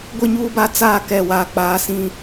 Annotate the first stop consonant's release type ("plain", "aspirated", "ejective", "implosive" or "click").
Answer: plain